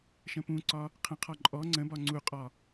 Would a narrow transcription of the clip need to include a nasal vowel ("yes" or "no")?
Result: yes